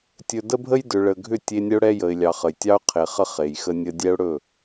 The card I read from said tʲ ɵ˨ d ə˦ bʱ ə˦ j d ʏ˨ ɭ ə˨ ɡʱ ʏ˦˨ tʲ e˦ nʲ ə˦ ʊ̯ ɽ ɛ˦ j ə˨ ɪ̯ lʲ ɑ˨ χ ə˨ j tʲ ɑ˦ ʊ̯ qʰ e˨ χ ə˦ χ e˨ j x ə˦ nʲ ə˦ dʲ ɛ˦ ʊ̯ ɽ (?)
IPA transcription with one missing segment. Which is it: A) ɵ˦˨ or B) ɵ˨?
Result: A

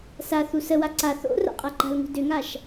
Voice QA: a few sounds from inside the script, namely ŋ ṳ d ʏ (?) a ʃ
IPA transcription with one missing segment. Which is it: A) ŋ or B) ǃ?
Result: A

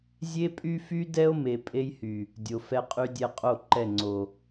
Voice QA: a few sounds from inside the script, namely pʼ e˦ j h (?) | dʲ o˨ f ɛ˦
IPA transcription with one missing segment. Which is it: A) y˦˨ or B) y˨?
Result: B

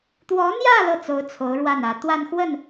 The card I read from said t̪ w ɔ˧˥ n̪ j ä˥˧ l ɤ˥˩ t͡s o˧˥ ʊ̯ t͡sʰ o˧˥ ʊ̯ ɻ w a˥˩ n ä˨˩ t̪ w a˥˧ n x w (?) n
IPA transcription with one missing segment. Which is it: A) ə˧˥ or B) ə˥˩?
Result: B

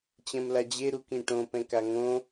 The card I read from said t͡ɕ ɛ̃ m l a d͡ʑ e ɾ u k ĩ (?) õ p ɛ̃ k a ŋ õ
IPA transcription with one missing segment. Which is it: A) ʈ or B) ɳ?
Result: A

